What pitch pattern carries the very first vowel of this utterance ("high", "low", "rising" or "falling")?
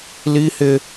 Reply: high